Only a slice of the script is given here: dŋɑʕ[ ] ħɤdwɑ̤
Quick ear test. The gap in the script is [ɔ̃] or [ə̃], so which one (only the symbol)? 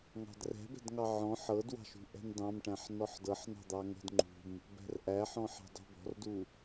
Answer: ɔ̃